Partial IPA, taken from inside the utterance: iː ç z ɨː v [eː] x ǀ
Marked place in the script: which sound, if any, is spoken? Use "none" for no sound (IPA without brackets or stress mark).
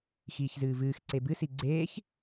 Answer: ɨː